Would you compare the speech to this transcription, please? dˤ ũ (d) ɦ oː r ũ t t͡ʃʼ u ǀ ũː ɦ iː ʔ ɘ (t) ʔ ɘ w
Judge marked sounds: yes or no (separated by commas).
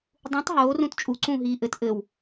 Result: no, yes